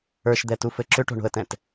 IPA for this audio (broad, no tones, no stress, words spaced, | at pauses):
ə˞ʃd̪ɛtufɘ ǁʏʈo̤ɳo̤ə̯tɛ̃t